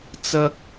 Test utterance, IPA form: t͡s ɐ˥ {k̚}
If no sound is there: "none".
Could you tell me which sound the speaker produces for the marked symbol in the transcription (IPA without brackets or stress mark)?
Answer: k̚